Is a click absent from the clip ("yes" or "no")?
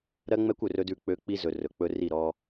yes